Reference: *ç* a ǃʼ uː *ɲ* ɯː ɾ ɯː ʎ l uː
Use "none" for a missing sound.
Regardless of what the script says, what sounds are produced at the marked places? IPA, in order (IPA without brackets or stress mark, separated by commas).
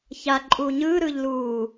ç, ɲ